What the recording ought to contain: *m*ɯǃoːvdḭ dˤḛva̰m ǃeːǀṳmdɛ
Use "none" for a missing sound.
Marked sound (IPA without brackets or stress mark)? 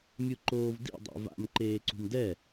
mʲ